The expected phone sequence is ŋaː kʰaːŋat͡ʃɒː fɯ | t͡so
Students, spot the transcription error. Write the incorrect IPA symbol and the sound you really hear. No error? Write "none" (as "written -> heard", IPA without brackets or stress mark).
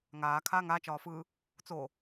none